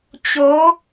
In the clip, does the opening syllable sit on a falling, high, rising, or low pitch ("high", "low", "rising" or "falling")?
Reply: rising